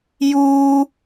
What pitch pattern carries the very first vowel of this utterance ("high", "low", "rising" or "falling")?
low